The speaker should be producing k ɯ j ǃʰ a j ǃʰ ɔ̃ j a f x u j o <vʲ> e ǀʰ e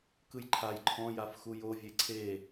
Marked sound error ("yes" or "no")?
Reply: no